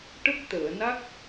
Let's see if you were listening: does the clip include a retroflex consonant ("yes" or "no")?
yes